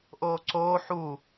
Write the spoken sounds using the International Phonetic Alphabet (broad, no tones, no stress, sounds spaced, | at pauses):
ʔ oː ǀ oː ħ u